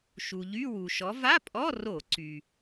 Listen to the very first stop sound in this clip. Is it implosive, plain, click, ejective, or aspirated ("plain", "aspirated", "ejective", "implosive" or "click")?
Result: ejective